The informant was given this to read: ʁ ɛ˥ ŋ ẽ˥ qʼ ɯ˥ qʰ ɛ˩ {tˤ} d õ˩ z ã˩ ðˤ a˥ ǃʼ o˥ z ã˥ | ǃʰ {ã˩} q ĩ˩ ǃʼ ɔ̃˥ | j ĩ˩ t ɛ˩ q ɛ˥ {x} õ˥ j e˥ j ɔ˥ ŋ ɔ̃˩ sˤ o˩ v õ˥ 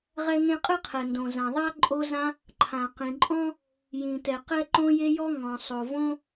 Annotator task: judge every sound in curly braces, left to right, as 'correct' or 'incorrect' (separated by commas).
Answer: incorrect, correct, incorrect